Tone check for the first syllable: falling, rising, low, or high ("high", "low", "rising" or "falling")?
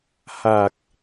low